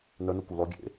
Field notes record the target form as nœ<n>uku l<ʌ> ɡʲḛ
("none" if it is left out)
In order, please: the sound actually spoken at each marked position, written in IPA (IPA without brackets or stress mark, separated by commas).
n, ɔ